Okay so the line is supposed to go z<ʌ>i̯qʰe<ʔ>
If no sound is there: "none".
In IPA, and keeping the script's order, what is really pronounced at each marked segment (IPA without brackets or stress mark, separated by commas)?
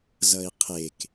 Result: ʌ, k